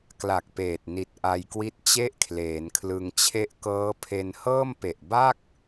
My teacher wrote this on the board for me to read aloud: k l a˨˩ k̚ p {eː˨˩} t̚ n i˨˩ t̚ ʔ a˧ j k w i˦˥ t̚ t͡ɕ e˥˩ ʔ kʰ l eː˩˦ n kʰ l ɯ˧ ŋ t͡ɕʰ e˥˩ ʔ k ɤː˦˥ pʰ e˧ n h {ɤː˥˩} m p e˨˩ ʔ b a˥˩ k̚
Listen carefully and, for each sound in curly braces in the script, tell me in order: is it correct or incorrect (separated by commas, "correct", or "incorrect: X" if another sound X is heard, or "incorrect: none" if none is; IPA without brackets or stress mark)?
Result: correct, correct